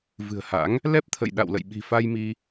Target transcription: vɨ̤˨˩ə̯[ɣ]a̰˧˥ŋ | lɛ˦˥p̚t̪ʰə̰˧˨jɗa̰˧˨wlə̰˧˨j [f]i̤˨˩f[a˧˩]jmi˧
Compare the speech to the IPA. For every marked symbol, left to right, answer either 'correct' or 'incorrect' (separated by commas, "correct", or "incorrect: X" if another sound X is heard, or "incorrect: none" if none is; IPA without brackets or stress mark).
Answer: incorrect: h, incorrect: ɓ, incorrect: a˧